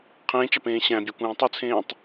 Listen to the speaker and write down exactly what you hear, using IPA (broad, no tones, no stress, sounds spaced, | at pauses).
qʰ ẽː t͡ʃ ɑ p ẽː ɕ æ̃ bʲ ɑ kʷ ẽː tˤ u t͡sʰ ẽː tˤ